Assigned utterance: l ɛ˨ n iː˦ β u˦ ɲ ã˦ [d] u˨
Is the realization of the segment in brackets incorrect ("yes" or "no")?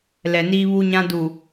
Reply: no